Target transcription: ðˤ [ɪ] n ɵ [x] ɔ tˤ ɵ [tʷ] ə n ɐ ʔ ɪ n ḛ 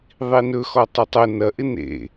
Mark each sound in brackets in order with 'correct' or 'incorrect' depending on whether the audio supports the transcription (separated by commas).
incorrect, correct, incorrect